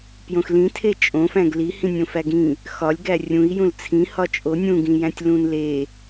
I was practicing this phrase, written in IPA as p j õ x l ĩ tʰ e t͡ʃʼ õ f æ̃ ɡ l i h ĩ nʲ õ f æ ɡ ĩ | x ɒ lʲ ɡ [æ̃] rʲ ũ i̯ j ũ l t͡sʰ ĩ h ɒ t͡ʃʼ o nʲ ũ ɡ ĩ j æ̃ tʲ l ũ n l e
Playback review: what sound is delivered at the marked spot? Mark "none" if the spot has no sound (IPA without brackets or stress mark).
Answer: æ